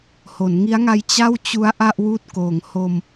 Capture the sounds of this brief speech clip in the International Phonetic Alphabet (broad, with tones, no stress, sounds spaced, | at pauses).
h o˩˦ n ŋ i˦˥ a̯ ŋ a˦˥ j t͡ɕ a˥˩ w t͡ɕ u˦˥ a̯ ʔ a˥˩ ʔ w uː˦˥ t̚ k oː˩˦ ŋ h o˧ m